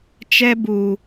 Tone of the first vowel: high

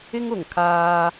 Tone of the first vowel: high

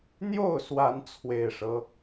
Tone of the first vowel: falling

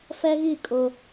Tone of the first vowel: high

